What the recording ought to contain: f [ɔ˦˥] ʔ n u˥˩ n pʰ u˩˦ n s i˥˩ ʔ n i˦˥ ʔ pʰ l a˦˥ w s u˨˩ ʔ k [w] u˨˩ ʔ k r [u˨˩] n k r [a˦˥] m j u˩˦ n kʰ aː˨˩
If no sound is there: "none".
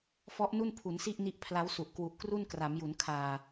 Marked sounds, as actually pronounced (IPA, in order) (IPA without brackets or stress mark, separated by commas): ɔ˦˥, w, u˥˩, a˩˦